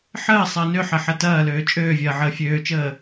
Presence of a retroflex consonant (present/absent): absent